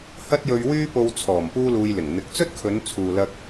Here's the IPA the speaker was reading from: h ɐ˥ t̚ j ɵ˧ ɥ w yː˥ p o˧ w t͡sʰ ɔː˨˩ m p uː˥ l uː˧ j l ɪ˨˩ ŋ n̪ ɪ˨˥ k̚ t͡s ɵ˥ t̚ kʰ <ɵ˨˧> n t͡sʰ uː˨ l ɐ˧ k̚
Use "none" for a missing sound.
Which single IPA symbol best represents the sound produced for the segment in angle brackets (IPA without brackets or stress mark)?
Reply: ɵ˨˧